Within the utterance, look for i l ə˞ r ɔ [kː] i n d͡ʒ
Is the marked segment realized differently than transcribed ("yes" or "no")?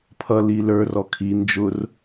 yes